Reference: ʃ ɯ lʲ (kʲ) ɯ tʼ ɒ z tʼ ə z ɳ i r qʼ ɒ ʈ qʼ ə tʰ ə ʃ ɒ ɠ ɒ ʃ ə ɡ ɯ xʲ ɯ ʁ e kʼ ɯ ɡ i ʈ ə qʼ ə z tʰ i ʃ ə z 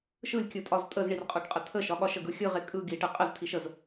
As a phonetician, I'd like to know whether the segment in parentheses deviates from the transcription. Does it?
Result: no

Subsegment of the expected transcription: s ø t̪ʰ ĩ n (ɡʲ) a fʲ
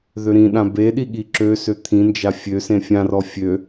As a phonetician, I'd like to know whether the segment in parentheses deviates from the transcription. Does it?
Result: yes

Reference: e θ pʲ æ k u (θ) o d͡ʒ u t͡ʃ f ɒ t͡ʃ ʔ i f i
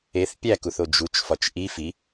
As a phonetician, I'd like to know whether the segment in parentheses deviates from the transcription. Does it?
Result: no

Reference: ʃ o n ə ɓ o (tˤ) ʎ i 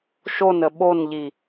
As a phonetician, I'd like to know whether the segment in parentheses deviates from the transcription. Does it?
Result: yes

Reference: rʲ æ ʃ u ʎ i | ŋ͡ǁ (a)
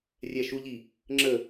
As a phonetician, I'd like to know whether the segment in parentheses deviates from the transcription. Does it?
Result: yes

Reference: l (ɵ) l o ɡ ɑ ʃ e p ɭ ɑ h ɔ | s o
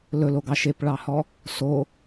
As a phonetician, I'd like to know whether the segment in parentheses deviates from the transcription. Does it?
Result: no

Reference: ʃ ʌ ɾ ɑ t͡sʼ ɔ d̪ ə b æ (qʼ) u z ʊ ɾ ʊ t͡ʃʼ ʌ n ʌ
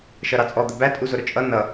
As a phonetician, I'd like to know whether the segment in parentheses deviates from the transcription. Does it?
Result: yes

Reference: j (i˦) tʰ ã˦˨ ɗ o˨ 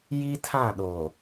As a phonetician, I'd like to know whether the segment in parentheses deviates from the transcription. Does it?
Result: no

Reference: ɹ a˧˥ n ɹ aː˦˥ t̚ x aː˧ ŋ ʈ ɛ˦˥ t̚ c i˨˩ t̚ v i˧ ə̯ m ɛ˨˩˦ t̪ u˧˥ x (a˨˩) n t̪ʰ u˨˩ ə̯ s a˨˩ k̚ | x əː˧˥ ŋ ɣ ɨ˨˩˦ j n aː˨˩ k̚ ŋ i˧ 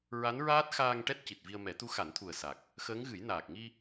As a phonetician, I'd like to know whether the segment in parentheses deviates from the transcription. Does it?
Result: yes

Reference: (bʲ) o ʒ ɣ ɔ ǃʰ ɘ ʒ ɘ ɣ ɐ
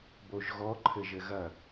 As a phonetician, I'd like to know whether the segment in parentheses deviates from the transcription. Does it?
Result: yes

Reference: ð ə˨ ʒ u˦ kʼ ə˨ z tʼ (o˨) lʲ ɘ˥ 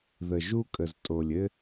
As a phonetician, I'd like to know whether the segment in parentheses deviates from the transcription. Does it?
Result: no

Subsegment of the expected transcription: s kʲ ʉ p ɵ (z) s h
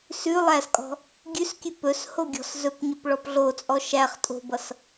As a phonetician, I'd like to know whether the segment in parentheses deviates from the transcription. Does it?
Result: yes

